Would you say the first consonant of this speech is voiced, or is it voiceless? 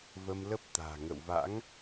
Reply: voiced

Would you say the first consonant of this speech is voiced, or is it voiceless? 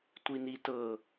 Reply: voiceless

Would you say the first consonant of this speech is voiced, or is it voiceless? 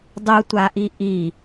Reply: voiced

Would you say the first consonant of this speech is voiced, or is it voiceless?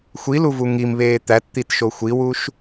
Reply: voiceless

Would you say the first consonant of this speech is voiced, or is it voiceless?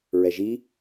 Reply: voiced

